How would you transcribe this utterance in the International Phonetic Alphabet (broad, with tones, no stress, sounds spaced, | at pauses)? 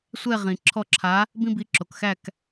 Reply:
sʷ ɛ˦˨ ʁ ĩ˩ ǁʰ ɔ˦˨ ǁʰ a˨˥ | b ĩ˦ b i˨˥ ǁ o˩ k x æ˦˨ k